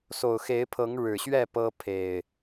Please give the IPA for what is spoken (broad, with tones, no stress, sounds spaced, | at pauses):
s o˨˩ ʊ̯ x e˨˦ ɪ̯ pʰ ɤ˨˦ ŋ ɻ ɻ̩˨˩ ɕ ɥ ɛ˥˨ p ɤ˦ pʰ e˨˩ ɪ̯